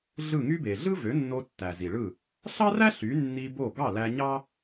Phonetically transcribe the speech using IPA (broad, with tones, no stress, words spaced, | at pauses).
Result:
ɮɯ˥˩ŋy˥be˩ ɮɯ˥vø˩˥nːo˧ tːæ˩zi˩ɭɯ˥˩ | ɬɑ˥ræ˥ ɬy˩˥nːi˧ bo˥˩ ɡɑ˥˩læ˧ ɲɑ˥